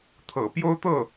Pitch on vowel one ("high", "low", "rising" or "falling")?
low